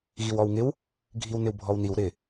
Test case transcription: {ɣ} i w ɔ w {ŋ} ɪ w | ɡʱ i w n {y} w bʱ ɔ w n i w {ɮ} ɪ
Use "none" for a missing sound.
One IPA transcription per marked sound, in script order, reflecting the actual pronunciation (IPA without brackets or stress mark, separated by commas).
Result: ɣ, ŋ, ɪ, ɾ